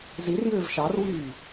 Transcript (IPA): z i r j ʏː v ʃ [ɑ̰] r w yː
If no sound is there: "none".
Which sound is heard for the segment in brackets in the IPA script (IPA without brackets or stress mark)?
ɑ